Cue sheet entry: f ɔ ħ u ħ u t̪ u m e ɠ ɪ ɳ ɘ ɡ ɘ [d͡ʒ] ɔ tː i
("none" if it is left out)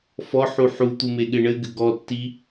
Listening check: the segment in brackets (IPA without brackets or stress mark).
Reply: ɡ